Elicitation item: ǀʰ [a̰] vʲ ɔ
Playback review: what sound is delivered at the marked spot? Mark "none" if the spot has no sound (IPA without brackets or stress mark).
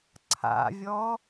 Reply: a̰